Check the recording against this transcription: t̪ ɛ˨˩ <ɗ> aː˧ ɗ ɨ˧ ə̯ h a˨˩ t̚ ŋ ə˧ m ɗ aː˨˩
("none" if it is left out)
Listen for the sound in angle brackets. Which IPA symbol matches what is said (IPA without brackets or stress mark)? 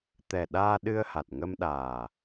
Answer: ɗ